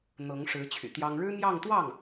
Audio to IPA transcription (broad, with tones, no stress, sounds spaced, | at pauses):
n̪ ɤ˧˥ ŋ ʂ ɻ̩˧˥ t͡ɕʰ y̰˨˩ t̪ j ɑ˥ ŋ ɻ ɻ̩˥ n̪ j ɑ˥˧ ŋ t̪ w ɑ˥˩ ŋ